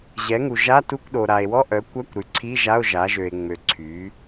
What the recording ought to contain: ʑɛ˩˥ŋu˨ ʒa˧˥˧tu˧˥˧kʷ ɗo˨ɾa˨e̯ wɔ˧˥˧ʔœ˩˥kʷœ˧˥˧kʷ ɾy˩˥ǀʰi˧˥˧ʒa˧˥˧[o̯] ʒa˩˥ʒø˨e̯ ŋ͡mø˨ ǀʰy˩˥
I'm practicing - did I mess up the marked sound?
no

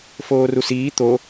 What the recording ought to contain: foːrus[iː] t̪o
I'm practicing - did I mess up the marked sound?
no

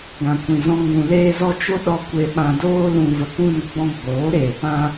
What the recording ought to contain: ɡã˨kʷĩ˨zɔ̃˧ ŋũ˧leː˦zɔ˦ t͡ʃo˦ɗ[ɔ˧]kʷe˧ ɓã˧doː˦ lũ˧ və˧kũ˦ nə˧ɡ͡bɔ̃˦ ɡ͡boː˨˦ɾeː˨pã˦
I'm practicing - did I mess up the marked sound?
no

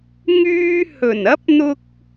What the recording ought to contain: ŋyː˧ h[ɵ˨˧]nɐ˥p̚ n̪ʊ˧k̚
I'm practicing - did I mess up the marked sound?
yes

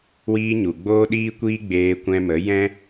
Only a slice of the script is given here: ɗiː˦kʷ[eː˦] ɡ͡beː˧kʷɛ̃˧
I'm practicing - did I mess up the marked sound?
yes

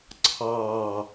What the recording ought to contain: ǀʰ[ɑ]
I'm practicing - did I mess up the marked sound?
no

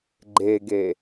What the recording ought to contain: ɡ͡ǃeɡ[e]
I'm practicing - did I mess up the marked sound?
no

